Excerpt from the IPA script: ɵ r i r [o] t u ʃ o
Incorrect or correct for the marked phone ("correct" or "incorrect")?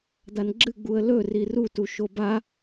incorrect